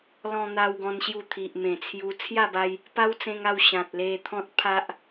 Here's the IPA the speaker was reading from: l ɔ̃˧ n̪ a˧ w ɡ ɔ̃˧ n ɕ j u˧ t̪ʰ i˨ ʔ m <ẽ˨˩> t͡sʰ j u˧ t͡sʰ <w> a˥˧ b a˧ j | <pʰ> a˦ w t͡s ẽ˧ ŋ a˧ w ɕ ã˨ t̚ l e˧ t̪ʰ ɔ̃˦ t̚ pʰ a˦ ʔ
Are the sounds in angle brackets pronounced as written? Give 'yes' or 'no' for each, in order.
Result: yes, no, no

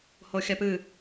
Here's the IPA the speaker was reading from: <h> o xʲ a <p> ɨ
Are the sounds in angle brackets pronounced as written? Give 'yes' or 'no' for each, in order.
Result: yes, yes

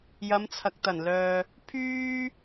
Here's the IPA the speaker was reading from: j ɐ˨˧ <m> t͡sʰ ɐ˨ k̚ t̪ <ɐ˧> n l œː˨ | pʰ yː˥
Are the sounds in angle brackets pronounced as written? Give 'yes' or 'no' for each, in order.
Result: yes, no

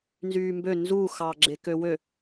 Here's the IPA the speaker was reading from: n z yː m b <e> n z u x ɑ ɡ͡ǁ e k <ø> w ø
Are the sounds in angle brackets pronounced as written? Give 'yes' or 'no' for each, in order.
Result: no, yes

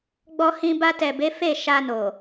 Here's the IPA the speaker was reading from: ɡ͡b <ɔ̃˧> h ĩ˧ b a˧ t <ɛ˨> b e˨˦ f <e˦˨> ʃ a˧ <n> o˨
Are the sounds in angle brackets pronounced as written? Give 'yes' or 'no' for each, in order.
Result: no, yes, yes, yes

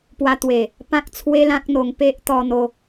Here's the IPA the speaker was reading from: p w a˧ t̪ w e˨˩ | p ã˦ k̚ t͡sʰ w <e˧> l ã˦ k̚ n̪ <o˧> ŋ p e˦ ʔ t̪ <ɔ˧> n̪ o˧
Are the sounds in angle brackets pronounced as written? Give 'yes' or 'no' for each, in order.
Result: no, yes, yes

